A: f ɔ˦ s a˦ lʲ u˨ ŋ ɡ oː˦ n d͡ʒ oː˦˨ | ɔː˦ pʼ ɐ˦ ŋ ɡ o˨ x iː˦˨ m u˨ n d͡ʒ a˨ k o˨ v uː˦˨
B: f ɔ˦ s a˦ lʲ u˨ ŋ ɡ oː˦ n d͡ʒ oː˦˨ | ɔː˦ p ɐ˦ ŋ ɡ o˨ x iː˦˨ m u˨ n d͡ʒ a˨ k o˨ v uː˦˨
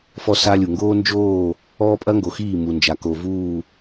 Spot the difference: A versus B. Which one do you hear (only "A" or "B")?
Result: A